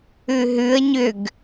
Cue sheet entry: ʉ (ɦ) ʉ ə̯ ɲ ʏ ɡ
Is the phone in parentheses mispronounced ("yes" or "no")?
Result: no